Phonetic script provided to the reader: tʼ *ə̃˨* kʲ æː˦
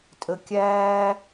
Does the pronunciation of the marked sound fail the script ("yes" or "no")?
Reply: yes